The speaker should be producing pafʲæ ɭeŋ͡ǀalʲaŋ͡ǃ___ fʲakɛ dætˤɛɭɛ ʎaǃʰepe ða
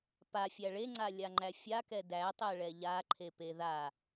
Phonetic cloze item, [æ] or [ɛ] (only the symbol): æ